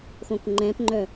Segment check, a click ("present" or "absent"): present